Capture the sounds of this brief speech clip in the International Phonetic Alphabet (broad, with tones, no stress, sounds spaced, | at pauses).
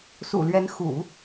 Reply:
s ṵ˨˩ l ɥ ɛ˧˥ n x ṵ˨˩˦